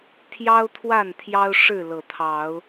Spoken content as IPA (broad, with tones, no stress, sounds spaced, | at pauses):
t̪ʰ j ɑ˦ ʊ̯ t̪ʰ w a˥˨ n t̪ʰ j ɑ˦ ʊ̯ ʂ ɻ̩˥˨ l ɤ˨˩ t̪ʰ ɑ˨˦ ʊ̯